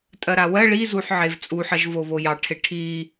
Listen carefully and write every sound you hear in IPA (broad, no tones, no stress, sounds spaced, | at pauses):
tʼ ɜ ɾ a w ɜ ɭ i z u ħ ʕ e v t͡sʼ u ħ ɜ ʒ v o β o j ɑ ʈʰ e ʈʰ i